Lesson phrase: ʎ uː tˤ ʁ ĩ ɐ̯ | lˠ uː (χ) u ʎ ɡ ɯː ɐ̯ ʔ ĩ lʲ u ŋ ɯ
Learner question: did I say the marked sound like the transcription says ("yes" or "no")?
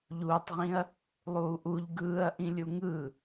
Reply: no